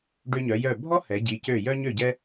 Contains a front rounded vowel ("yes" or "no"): yes